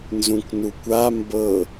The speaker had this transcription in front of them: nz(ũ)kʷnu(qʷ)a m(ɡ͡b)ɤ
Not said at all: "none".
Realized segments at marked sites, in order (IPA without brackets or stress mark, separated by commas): ũ, kʷ, b